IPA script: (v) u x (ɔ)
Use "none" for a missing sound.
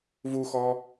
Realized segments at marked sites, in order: v, ɔ

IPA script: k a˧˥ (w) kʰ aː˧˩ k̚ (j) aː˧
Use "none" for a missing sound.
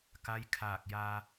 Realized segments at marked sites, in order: j, j

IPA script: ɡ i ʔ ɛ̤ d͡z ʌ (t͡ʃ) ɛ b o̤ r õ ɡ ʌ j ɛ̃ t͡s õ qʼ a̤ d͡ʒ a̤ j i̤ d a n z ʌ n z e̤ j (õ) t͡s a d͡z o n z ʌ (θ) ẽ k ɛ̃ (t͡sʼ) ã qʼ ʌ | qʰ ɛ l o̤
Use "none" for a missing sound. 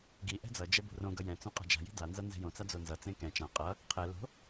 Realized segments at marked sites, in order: d͡ʒ, õ, t͡s, t͡ʃ

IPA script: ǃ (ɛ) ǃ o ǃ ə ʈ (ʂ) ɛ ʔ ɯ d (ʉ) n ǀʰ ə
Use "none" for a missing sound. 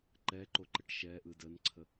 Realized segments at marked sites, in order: ɛ, ʃ, ə

